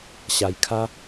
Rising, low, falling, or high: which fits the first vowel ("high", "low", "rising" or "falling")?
low